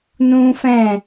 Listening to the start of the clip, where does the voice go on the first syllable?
high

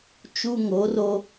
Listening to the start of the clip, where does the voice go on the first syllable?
high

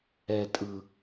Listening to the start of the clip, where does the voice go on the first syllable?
low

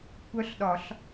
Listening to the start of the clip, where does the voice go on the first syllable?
rising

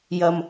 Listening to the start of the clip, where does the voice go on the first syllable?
low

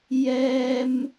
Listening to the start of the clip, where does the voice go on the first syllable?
high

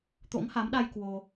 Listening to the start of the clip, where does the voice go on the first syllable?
rising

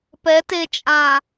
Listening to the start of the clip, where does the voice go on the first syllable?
rising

